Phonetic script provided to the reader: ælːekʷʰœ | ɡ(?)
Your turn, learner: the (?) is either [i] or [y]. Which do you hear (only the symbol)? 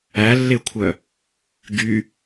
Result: y